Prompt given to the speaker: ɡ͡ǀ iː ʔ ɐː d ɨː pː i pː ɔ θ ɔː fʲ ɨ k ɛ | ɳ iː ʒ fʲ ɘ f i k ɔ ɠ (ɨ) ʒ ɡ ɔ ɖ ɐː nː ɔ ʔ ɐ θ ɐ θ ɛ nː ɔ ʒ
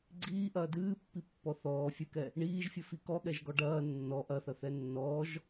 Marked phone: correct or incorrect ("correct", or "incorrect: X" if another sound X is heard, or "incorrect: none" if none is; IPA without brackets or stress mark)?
incorrect: ɛ